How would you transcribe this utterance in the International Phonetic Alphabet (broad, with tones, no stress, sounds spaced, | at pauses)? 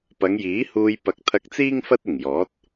p ɐ˨˧ ŋ j iː˨˥ h uː˧ j p ɐ˨˥ k̚ t̪ʰ ɐ˧ k̚ t͡s iː˥ ŋ f ɐ˥ t̚ ɪ˨˩ ŋ j ɔː˨˥ t̚